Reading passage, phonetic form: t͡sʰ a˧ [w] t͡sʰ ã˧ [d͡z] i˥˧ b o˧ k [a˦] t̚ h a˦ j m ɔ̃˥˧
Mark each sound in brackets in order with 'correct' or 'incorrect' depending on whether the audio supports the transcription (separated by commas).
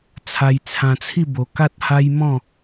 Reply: incorrect, incorrect, correct